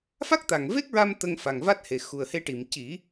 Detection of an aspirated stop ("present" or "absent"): absent